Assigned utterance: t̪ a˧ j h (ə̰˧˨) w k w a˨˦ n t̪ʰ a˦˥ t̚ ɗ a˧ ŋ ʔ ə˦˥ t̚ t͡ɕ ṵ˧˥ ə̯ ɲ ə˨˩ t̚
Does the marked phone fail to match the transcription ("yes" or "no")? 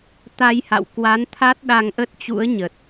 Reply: yes